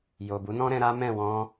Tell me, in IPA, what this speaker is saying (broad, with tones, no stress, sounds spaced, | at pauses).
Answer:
j o˨ b u˨˦ n ɔ̃˦ ɾ ɛ̃˧ ɾ a˦ m ɛ̃˦˨ w ɔ̃˧